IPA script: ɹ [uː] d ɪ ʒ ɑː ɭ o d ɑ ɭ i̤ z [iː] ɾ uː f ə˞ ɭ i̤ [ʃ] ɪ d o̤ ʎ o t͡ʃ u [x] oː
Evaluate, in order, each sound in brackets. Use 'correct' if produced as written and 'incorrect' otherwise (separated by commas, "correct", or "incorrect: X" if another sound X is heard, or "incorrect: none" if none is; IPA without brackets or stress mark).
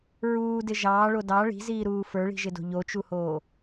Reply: correct, correct, incorrect: ʒ, incorrect: h